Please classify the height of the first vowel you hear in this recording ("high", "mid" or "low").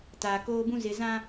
low